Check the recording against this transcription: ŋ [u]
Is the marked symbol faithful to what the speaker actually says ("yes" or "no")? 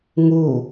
yes